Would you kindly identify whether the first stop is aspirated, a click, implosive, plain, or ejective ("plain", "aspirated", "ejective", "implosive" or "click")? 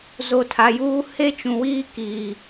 aspirated